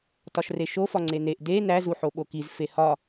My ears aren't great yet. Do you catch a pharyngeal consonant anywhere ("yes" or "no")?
yes